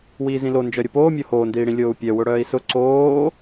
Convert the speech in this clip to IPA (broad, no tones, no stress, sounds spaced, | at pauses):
w iː z ĩ l o n d͡ʒ œ ɾʲ ʊ p oː mʲ o h oː n d iː ɽ ĩ lʲ oː u̯ pʲ œ w ʊ ɽ œː i̯ s ʊ ǀ oː